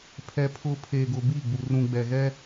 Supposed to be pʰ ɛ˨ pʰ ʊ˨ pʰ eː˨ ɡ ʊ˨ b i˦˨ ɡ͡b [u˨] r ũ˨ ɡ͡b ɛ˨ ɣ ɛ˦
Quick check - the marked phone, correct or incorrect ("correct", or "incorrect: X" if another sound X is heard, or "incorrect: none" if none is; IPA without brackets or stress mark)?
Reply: correct